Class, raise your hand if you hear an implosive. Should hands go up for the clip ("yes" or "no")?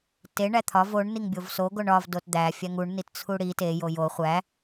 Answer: no